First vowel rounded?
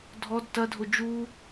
yes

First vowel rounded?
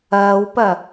no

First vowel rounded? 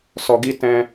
yes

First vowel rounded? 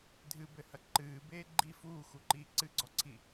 no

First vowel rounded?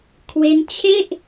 no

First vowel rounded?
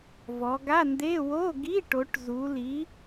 yes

